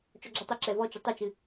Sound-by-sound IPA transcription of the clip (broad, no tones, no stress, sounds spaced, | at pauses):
t͡ʃ ɔ ɡ͡ǁ ɨ tˤ ɘ ǁ ɛ v ɔ t͡ʃ ə tˤ ɘ t͡ʃ ɨ